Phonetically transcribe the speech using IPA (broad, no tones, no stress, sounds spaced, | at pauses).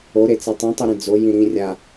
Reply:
o ɾ e t͡s ɛ tˤ ĩ tˤ u ɾ ẽ d͡z o j ĩ ɾ ĩ rʲ a